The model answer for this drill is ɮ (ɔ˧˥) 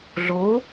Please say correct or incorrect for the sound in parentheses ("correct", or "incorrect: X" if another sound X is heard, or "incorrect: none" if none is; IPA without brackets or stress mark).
incorrect: o˧˥